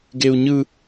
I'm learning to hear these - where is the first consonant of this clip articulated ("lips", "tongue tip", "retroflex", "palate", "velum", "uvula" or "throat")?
velum